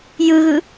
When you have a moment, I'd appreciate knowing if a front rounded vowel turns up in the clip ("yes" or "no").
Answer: no